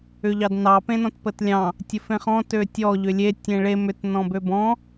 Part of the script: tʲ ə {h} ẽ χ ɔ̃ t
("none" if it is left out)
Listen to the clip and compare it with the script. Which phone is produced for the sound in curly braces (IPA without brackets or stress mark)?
f